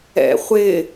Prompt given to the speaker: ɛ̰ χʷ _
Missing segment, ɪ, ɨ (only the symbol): ɪ